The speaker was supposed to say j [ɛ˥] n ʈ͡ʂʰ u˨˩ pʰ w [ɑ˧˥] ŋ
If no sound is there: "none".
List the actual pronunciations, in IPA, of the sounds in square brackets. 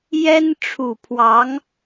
ɛ˥, ɑ˧˥

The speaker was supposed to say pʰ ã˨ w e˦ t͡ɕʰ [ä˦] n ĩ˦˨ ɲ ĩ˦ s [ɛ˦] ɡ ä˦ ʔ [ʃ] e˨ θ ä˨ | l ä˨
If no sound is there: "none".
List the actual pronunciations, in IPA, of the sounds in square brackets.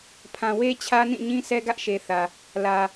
ä˦, ɛ˦, ʃ

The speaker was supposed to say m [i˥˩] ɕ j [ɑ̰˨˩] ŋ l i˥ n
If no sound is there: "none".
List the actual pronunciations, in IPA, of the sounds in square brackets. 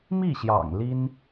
i˥˩, ɑ̰˨˩

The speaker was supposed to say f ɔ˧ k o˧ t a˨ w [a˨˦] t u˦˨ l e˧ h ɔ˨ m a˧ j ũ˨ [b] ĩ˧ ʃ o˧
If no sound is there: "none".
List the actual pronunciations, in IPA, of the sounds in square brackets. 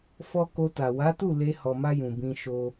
a˨˦, b

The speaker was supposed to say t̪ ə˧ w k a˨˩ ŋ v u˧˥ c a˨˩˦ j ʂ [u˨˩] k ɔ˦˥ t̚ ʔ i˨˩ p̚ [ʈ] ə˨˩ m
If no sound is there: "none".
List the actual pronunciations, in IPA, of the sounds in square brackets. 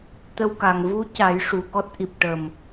u˨˩, ʈ

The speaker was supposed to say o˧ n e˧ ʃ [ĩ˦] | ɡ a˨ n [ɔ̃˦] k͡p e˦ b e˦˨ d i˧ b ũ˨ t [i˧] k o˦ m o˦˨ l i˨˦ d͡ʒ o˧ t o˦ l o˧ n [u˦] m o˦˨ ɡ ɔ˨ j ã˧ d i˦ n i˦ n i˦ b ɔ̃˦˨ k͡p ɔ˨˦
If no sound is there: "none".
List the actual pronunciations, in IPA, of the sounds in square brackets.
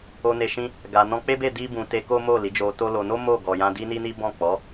ĩ˦, ɔ̃˧, e˧, o˦

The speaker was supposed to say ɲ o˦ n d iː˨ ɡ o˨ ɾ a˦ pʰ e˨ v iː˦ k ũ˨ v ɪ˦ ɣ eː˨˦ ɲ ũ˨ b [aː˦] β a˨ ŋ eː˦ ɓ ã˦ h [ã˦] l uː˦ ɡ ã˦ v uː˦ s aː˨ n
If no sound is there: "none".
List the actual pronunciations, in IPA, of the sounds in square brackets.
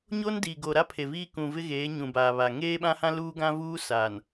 aː˨, ã˦

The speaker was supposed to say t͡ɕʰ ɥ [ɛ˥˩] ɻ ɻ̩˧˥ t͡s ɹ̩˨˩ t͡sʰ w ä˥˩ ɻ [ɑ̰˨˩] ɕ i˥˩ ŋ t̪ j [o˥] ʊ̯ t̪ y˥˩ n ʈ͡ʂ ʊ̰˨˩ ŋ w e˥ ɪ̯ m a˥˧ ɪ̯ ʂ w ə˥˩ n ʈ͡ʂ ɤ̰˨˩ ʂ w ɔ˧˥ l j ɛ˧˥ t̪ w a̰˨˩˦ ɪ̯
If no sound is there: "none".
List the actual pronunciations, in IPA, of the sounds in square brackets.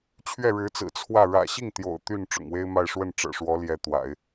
ɛ˥˩, ä̰˨˩, o̰˨˩

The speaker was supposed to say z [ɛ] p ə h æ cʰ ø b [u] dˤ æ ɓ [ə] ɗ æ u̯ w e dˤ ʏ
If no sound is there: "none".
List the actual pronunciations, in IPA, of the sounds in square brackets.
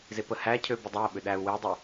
e, ʏ, ʏ

